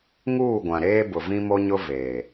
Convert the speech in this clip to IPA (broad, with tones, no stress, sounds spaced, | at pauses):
ŋ uː˦˨ ɡʷ ã˨ ɾ eː˦ b ʊ˨ v ĩ˦ m o˦ ɲ ʊ˦ v eː˨